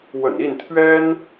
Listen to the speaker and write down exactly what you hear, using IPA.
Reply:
w ə̰˨˩ n i˥˨ n t̪ʰ ɥ ɛ˦ n

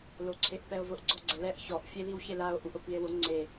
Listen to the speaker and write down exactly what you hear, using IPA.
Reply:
l o ǀʰ e ʔ p ɛ o̯ v ʊ ʔ ɡ͡ǀ ɔ ɡ͡ǀ ɛ l ɛ ʔ ç ɔ ʔ fʲ e l i w ç e l a o̯ ʔ u ʔ ʊ p i e̯ w ʊ ŋ͡ǀ e

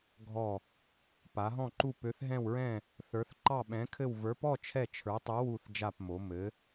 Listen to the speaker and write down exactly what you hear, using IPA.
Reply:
ɡʱ ɔ˥˧ | p a˧˥ ɦ ɔ̃˥˧ ǃ u˥˧ p ø˧˥ θ ɦ ɛ̃˥˧ w ɹ ɛ̃˥˧ | θ ə˞˧˥ θ ǃ ɑ˥˧ ɓ ɛ̃˧˥ kʰ ɘ˥˧ w v ə˞˧˥ p ɔ˥˧ t͡ʃʰ ɛ˥˧ t͡ʃʰ ə˞˧˥ tˤ u˧˥ w u˥˧ θ d͡ʒ a˥˧ p m o˧˥ m ɘ˧˥

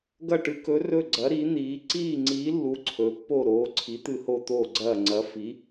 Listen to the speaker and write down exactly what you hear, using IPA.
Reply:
ɡ ɐ˥˧ ʈ ɨ˧˥ k ɵ˧˥ r ɵ˥˧ ɡ͡ǀ ɐ˧˥ ɾ i˧˥ n̪ iː˧˥ ǀ iː˥˧ ŋ͡ǀ iː˧˥ lː u˧˥ ǀʰ ɵ˧˥ pː o˥˧ ɾ oː˧˥ ǀʰ i˧˥ t̪ ɨ˥˧ h o˥˧ t̪ oː˥˧ ɡ͡ǀ ɐː˥˧ ŋ͡ǀ ɐ˧˥ f i˧˥

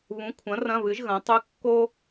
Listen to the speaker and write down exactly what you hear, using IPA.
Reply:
β ũ˩˥ kʷʰ ɐ̃˩˥ r ɐ̃˧˥˧ β ɨ˩˥ ʒ ɣ ɐ̃˩˥ tˤ ʉ˧˥˧ kː o˥

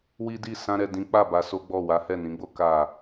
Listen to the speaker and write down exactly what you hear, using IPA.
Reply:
w i˦ d i˦˨ s ã˧ ɾ ɛ˨ d ĩ˨˦ k͡p a˦˨ b a˧ s o˦ ɡ͡b ɔ˦˨ w a˨˦ h ɛ˦˨ n ĩ˨˦ ɡ͡b o˦ k a˦˨

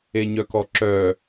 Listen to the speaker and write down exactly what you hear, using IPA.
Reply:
e ɲ œ k ɔ ǁ œ

